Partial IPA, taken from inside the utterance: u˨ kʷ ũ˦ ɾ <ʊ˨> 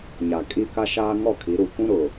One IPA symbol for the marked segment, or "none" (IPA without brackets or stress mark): ʊ˨